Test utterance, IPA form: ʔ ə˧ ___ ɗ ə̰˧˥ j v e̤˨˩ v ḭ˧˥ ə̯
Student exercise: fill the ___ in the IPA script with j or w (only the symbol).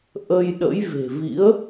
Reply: j